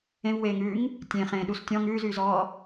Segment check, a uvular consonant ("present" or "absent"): present